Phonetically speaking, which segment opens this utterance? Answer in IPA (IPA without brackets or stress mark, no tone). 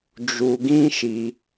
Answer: d͡ʒ